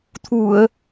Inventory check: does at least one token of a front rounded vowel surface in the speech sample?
no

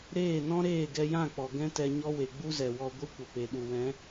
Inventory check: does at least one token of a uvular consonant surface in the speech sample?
no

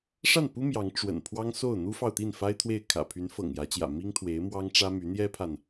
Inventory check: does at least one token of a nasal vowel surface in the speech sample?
no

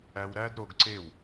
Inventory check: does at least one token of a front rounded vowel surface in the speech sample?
no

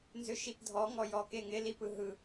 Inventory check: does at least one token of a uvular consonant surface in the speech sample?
no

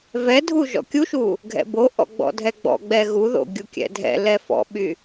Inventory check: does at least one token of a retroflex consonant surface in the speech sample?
no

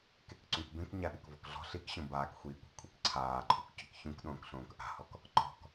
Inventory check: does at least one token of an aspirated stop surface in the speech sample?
yes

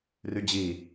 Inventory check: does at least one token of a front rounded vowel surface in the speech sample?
yes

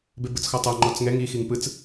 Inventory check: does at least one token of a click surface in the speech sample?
yes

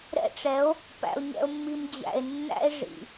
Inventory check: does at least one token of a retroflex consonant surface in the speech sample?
yes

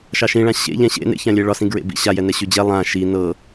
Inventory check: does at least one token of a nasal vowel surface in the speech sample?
yes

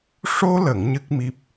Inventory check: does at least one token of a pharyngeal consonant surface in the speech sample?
no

